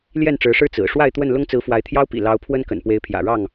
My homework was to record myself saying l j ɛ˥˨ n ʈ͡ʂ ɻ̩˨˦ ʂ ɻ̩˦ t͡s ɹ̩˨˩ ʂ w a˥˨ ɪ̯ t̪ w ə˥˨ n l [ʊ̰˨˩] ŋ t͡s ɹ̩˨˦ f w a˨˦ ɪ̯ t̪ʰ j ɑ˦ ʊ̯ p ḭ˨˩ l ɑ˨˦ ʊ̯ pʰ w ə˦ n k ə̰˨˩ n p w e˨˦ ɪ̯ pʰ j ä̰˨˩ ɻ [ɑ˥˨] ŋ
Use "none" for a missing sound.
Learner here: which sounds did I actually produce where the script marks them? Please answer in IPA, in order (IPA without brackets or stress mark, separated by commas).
ʊ˦, ɑ˥˨